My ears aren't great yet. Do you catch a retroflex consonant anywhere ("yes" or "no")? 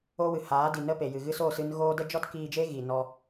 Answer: no